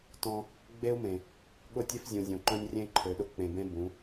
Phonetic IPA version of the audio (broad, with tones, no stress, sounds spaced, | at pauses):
t ɔ̃˦ | ɡ͡b e˦ u̯ m ẽ˨ | ɠ ʊ˦˨ tʲ e˦ f zʲ ũ˨ zʲ õ˨ ǃ œ̃˦ nʲ rʲ ẽ˦ i̯ ǃʰ ø˨ ɗ ʊ˦ k͡p ẽ˨ b ẽ˦ b ũ˨˦